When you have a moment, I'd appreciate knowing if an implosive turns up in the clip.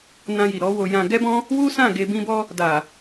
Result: no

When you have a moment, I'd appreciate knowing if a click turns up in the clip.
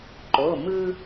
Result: yes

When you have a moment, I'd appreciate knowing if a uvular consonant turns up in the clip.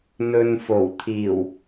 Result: no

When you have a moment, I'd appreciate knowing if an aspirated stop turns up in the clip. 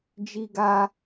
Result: no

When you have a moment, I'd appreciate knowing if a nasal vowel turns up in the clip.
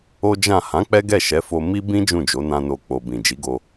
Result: yes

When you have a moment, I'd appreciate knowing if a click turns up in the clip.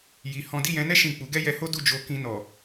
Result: no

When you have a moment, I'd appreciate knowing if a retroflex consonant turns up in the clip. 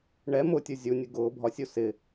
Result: yes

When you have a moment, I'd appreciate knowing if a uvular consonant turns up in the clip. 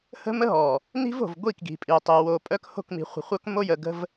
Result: yes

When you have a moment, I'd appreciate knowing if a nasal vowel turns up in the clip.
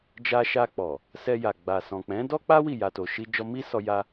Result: yes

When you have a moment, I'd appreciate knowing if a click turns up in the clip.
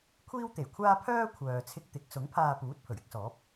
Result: no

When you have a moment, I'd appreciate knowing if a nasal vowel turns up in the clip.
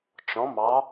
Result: yes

